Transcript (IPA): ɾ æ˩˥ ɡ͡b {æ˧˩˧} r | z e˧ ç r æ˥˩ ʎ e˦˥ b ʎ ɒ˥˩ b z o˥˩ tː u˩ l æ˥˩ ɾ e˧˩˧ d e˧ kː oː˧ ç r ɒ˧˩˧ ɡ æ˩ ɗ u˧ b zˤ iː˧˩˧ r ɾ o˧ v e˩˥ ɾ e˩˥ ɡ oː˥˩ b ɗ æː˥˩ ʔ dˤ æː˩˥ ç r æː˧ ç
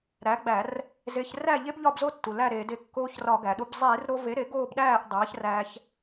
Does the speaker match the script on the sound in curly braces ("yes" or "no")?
yes